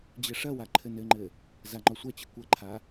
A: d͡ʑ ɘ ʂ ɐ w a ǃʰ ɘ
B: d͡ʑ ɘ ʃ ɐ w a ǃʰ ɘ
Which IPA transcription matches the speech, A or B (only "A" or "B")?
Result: A